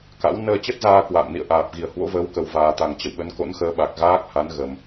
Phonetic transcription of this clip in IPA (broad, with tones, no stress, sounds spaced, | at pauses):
k a̰˧˥ w n əː˧ t͡ɕ ə˦˥ t̚ z aː˧ k w a̰ː˧˨ m n ḭ˧˨ ə̯ ʔ aː˨˩ p̚ ɣ i˧˩ ə̯ h w o̰˧˥ v əː˨˦ w k ə˨˩ w v aː˨˩ t̪ a˨˩ ŋ t͡ɕ ə̰˧˨ w ɓ ə˨˦ n k o̰˧˥ n x əː˧ ɓ a˨˩ k̚ ɣ aː˦˥ k̚ h a˨˦ n ɣ ə˨˩ m